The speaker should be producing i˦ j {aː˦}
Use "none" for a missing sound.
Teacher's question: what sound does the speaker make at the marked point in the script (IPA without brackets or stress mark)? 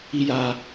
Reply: aː˦